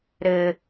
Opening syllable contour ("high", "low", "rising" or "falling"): high